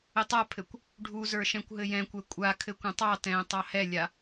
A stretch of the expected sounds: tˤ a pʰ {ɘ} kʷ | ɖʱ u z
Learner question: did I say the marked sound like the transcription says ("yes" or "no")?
yes